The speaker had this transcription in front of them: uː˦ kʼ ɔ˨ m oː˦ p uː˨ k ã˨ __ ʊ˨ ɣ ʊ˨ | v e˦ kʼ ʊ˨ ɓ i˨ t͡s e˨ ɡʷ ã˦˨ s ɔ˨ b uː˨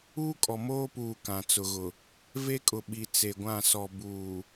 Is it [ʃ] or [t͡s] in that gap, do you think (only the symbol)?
t͡s